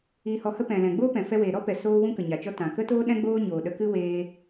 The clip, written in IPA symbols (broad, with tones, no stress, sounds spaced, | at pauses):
iː˧ h ɔ˧ h ə˦ p ɛ̃˨ l ɛ̃˨ ɡ͡b oː˦ p ɛ̃˨ f ɛ˧ w eː˨ ɾ ɔ˦ p ɛ˨ s oː˦ w ũ˦ k ə˨ ɲ a˨ t͡ʃ ɔ˦ t ã˨ k ə˦ t oː˦ ɗ ɛ̃˦ ɡ͡b oː˦ ɲ oː˨ ɗ ə˧ k ɨ˦ w eː˧